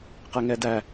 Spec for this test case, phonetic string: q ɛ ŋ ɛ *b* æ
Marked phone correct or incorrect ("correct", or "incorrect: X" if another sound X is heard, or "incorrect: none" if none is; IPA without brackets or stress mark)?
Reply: incorrect: d